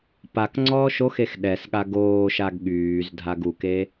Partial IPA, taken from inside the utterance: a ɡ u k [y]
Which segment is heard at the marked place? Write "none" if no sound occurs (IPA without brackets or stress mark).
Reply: e